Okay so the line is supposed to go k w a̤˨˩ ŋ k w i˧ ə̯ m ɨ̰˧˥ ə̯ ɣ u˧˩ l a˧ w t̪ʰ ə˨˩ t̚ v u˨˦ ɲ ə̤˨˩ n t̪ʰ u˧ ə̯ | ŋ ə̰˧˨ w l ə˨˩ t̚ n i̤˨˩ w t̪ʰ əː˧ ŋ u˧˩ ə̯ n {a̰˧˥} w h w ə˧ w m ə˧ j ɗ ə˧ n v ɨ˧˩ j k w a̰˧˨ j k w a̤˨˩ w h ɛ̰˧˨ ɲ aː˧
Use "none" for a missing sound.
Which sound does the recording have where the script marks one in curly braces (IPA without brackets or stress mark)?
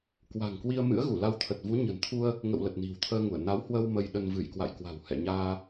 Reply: a˨˦